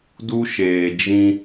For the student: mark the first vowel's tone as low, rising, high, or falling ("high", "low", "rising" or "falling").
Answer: high